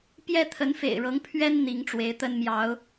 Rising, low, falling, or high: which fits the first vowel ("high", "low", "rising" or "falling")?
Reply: high